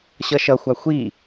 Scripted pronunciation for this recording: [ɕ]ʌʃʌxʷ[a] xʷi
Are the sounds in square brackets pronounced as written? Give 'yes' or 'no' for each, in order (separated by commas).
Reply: yes, yes